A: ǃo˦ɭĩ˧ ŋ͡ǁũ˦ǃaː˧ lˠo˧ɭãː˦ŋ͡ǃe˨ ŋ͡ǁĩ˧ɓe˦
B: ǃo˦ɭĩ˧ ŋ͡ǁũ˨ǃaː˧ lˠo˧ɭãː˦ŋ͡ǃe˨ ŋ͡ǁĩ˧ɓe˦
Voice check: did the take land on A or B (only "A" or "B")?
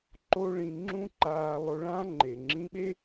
A